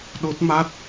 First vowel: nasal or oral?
oral